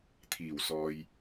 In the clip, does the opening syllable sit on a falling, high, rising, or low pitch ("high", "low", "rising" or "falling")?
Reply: low